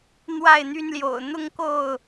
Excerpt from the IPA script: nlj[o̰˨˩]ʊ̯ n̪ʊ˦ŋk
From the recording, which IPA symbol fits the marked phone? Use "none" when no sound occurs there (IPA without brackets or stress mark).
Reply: o̰˨˩